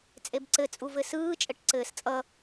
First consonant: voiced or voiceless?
voiceless